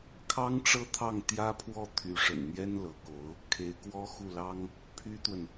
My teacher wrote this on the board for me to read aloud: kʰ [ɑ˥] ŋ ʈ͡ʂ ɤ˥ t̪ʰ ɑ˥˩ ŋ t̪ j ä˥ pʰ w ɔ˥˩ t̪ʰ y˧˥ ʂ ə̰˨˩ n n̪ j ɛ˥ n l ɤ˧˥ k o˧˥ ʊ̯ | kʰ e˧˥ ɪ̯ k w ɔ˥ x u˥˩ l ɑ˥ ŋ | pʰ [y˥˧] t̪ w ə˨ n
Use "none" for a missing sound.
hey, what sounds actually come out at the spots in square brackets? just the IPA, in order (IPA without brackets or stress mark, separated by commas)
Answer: ɑ˥, y˥